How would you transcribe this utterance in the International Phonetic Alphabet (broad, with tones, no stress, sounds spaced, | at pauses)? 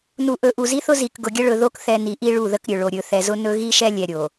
n u˨ ʔ ɵ˨ ʔ u˨ z i˦ θ ʊ˦ z i˨ k ɡ ʊ˨ ɡʲ ə˦ ɭ ɵ˨ ð o˦ k θ ɛ˦ n i˨ ʔ i˦ ɭ u˦˨ ð ə˦ k ɾʲ ɵ˨ ɭ o˨ ɾʲ ɵ˨ θ ɛ˨ z ʊ˦ n ɵ˦ ɣ i˦ ʃ ɛ˦ lʲ ɛ˨ ɾʲ o˨